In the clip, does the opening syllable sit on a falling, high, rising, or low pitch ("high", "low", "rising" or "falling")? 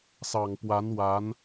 low